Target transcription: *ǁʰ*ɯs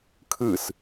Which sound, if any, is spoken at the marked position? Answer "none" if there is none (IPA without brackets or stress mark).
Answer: kʰ